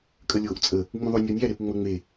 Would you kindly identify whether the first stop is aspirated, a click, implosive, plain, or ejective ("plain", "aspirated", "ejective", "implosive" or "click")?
ejective